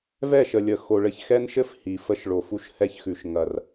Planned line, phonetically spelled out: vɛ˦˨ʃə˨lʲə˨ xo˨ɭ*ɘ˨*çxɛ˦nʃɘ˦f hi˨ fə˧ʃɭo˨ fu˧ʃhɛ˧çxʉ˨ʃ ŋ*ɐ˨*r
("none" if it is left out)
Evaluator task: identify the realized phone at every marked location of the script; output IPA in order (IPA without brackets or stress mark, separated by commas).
ɘ˧, ɐ˨